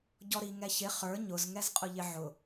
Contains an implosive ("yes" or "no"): no